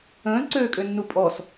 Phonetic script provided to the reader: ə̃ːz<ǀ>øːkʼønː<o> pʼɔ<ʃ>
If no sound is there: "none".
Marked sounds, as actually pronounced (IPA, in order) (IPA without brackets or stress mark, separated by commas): ǀ, u, s